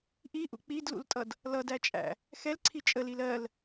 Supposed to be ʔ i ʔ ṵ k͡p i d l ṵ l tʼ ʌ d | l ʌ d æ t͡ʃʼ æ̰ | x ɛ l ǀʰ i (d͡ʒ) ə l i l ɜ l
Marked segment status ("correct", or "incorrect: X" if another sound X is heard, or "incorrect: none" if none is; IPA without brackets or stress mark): incorrect: t͡ʃʼ